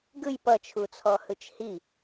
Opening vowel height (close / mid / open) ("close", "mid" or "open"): close